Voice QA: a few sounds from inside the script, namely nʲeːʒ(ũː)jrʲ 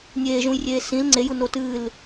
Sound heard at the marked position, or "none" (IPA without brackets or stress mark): ũ